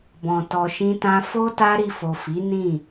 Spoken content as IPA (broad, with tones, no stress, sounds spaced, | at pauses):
b ɔ̃˧ t ɔ˧ ʃ ĩ˦ t ã˦ f o˦ t a˦ ɾ i˧ f o˨ f i˨˦ n ĩ˦˨